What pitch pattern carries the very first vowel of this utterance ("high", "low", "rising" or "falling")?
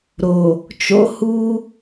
low